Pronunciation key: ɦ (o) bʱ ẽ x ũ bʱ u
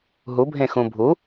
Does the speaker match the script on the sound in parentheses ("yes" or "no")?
no